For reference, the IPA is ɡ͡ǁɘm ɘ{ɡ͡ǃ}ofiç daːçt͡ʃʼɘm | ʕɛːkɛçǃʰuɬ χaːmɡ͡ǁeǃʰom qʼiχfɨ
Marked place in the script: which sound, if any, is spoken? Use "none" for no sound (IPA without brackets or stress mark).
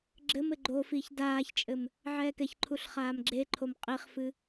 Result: ɡ͡ǃ